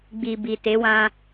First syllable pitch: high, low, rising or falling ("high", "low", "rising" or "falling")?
low